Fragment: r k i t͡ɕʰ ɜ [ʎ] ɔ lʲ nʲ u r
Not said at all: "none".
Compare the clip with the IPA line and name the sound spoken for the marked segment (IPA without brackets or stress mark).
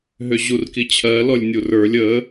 l